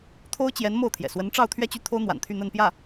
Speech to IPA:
t̪ʰ o˥ ʊ̯ t͡ɕ j ɛ˧˥ n m o˥˩ ʊ̯ t̪ʰ j ɛ̰˨˩ s w ə˧˥ n ʈ͡ʂ ɑ˥˧ ʊ̯ t̪ʰ ɥ ɛ˥˧ t͡ɕ y˥˩ t̪ʰ o˥ ʊ̯ n̪ w a̰˨˩ n t̪ʰ y˥˧ n̪ ə˥˧ n p j ä˥˩

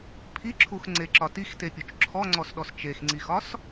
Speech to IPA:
pʰ i ǁʰ u x ŋ͡ǀ e ǁ ɒ t i x t e pʲ u t͡ʃ ǁʰ ɔ ŋ͡ǀ ɔ s ɗ ɔ s t͡ʃ e x ŋ͡ǀ i x ɒ s

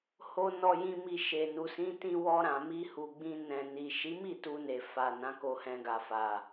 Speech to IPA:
h o˨ n ɔ˨ j ĩ˨ m i˨ ʃ e˨ n u˨ s ĩ˨˦ t ĩ˧ w ɔ˧ ɾ ã˨ m i˧ h u˨ ɡ͡b ĩ˧ n ɛ̃˨ n i˨ ʃ i˨˦ m i˦˨ t u˧ n e˨ f a˨ n ã˨˦ k o˧ h ɛ̃˧ ɡ a˨ f a˨

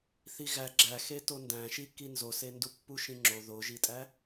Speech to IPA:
θ i ɣ æ ɡ͡ǁ æ x e t o n d æ̃ ʃ i k i n z o s e n d u pː u ʃ ĩ ŋ͡ǁ o ð o ʒ i tʼ æ

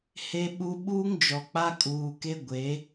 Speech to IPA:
h e˦ ɓ u˦ ɓ uː˦ ŋ d͡ʒ ɔ˨ k͡p a˦ kʼ uː˨ k e˦ ɡʷ e˨˦

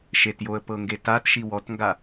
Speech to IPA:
ʃ e t j o ə̯ p ɤ ŋ ɡ e t a t ʃ i w ɔ t ŋ ɡ a

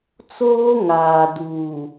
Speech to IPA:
t͡s oː˦ ŋ aː˨ d uː˨

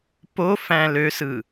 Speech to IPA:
p o f æ̃ l ø s ɯ

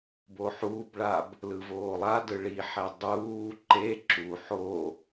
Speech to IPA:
b o ħ uː b ɭ a b | l ɯ v oː lˠ a d ɯ ɭ i ħ ɛ dˤ uː ǃ e ǁ u ħ o

